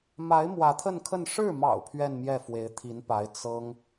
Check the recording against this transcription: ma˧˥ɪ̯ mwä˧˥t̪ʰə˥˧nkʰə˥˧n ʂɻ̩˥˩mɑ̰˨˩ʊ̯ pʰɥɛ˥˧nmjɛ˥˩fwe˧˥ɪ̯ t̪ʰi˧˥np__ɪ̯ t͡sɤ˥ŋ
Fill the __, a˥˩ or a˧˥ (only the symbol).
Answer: a˧˥